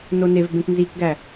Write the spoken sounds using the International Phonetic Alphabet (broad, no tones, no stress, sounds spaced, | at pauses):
n o n e v b ẽ k n z i k ɡ æ